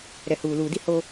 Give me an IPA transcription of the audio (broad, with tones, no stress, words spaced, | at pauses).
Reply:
ɾɛ˨huː˨luː˨di˦ ho˦